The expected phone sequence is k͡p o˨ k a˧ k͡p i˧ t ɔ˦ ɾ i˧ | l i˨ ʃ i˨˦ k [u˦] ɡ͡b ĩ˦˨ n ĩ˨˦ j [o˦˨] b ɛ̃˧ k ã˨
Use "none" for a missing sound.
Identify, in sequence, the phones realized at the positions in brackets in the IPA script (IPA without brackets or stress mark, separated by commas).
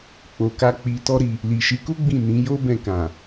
u˦, o˦